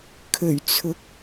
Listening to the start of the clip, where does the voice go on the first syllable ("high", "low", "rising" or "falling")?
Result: low